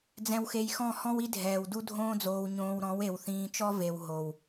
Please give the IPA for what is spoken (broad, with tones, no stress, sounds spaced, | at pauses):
d͡z ɛ̃˧ w x e˧ j x ɔ̃˦˨ h ɔ̃˦ w i˦ dʱ ɛː˨ w d u˦ dʱ õː˦ d͡z oː˧ w ɲ õː˧ w ɾ ɔ̃˨˦ w e˨ w θ ĩː˧ t͡ʃ ɔ˦ v e˨ w ɦ o˨ w